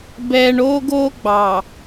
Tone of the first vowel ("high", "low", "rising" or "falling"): low